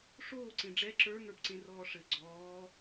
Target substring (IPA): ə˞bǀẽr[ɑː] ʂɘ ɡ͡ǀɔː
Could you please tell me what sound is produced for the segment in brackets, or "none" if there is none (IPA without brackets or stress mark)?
ɔː